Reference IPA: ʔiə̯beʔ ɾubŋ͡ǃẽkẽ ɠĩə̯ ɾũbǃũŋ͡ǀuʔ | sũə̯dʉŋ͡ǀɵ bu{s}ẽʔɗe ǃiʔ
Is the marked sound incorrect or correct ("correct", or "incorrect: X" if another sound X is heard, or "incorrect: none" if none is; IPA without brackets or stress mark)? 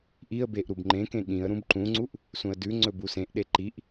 correct